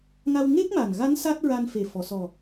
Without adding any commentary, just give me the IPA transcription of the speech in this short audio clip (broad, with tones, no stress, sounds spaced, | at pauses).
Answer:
ŋ a˧ w ŋ e˦˥ k̚ m a˨˩ n ɣ a˧˥ n s a˦˥ t̚ ɹ a˧ n f e˨˩ f ɔ˨˩˨ s ɔ˨˩